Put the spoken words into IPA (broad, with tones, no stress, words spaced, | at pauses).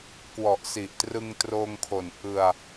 kwɔ˨˩ʔsi˨˩ʔtrɯ˧ŋ troː˧ŋkʰo˨˩nʔɯ˧a̯